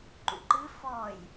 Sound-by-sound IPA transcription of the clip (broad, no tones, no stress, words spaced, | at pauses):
ǃṵǃɨ fɔj